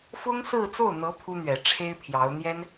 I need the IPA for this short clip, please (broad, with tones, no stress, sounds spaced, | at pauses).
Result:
f ʊ˥ ŋ s ɹ̩˥˧ t͡s o˥˩ ʊ̯ n̪ ɤ˧˥ pʰ u˥ n̪ ɥ ɛ˨˩ ʈ͡ʂʰ e˥ ɪ̯ pʰ j ɑ˧˥ ʊ̯ n̪ j ɛ˥ n